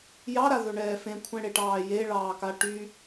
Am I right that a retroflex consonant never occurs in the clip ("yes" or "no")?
no